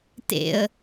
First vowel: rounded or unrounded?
unrounded